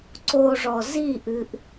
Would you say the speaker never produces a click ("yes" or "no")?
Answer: no